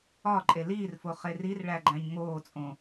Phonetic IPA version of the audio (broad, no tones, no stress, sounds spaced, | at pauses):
ɒ ǃʼ e l iː r f o χ e r i r ɭ æ ɡ͡ǃ æ̃ ɲ ŋ oː t͡sʼ õ